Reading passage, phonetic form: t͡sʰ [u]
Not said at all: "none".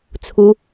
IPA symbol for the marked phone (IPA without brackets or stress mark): u